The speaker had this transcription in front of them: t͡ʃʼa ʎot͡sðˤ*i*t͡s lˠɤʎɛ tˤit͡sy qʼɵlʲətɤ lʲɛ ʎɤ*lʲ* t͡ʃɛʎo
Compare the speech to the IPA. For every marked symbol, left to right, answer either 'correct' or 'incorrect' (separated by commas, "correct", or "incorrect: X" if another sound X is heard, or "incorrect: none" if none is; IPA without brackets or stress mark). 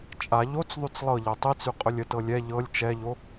incorrect: y, correct